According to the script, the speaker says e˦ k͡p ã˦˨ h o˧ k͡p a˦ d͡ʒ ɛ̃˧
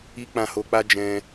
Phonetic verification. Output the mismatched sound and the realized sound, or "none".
e˦ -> i˦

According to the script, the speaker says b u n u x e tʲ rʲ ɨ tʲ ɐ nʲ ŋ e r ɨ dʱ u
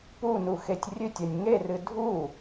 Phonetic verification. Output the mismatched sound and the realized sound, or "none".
b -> p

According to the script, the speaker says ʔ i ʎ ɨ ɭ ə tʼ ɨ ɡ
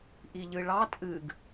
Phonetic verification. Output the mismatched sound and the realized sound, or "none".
ə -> ɑ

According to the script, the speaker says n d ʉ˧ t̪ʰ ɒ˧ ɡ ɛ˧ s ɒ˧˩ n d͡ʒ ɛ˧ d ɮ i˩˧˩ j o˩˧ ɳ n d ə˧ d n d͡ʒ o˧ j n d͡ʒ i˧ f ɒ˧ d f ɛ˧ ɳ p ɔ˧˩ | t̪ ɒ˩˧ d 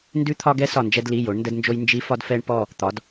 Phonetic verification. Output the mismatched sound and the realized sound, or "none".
ɮ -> l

